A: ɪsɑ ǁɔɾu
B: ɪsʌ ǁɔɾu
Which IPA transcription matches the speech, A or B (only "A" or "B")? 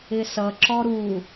B